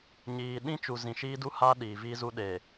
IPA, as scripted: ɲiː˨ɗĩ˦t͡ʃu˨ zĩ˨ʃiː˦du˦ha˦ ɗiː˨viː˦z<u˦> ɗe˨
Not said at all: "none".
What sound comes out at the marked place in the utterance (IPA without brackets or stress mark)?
u˦